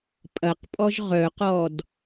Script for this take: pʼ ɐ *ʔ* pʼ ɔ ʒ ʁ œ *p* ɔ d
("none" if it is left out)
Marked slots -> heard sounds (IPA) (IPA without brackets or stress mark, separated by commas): q, q